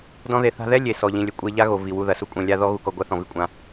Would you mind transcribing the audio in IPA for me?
d ɔ̃˦ ð e˧ θ a̤˧ ð ɛ˦ lʲ e˨ s ɔ˨ ʎ ĩ˨ lʲ ɘ˨˦ kʷʼ e˧ ʎ a˦ ɣ o˨ v i˨ w u˧ ð ɐ˨ s u˦ kʷʼ ɛ̃˨ lʲ a˧ ð ɔ˦ ɣ u˧ k ɔ˧ ɡʷ a˦ θ ɔ̃˨ v i˦ kʷʼ ã˧

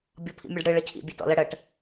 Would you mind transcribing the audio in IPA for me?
bʲ ɔ pʰ ḭ mʲ ɔ ɖ ɽ ɨ ɭ ə cʰ ḭ bʲ e t ɔ̰ l ə ɽ ə ʈ

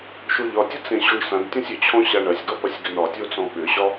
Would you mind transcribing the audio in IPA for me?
ʃ o ʎ ɒ tʲ ɐ t͡s ẽ ɕ o ɳ s ã d tʲ ɔ̃ sʲ ʏ t͡ɕʰ ɔ̃ ɕ a ɳ ɐ sʲ ɡ ɒ p ɐ sʲ ɡ ʏ n ɒ tʲ o t͡s ɔ̃ ɓ ʏ ɕ ɒ

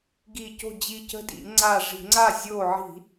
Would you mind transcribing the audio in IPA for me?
ɡ i˧˩ c o̤˥˩ d͡ʑ i˧˩ c ə̤˦ d ḭ˧˩˧ ŋ͡ǀ a˧˩ ʐ i̤˧˩˧ ŋ͡ǀ a˥˩ zʲ o˧˩ ʕ i̤˧˩˧

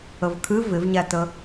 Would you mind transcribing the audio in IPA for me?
ə v kʰ ɨ v ɪ v ɲ æ t ə

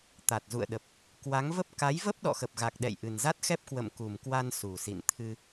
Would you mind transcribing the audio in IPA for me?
t̪ a˨˩ t̚ z ṵ˧˨ ə̯ ɗ ə˨˩ p̚ | k w a˨˦ ŋ v ə˦˥ p̚ k a˨˦ j v ə˦˥ p̚ ɗ ɔ̰˧˨ x ə˨˩ p̚ ɣ a˨˩ k̚ ɗ ɛ̰˧˨ j ʔ ɨ˨˩ n z a˦˥ t̚ x ɛ˦˥ p̚ k w ə̰˧˨ m k u˨˩ m k w a˧ n s u˨˩ s ḭ˧˨ n t̪ʰ ɨ˧

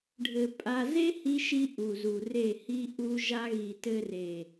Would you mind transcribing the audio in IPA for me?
ɖʱ ɘ˨ pʼ a˧ z e˦ h i˧ ʃ i˧ ʔ u˨ z u˨ r e˦˨ h i˦ ʔ u˦ ʒ a˦ ɣ i˨ t ɘ˧ r e˨

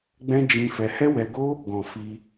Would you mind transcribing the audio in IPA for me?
ɡ͡b ɛ̃˦ d͡ʒ ĩ˧ f ɛ˧ h ɛ˦ w ɛ˧ ɡ o˦ | ɡ ɔ̃˨ f i˧

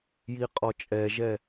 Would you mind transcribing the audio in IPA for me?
j i qʼ ɔ t͡ʃʼ ɛ ʒ ɛ

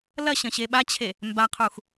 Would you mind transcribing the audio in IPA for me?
l ɐ ɕ ɐ̃ ɕ e ɓ a t͡ɕʰ e | m b a qʰ u x

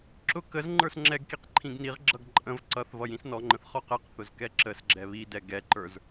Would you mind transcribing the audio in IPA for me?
ǁ ʊ k ə z ŋ͡ǃ ə˞ s ŋ͡ǁ ɛ ɡ k i q ǃʰ ĩ ɡ n i ʁ ɡ͡ǁ ʌ ɡ ǃʼ ə̃ v ǀ ʌ θ v ʌ j ĩ s n ɔ ŋ͡ǃ ə̃ θ χ ɔ q ɛ q θ ʊ z k ɛ ǁ ə s ɡ͡ǁ ɛ β i d ɛ ɡ ɛ ǃ ə˞ z

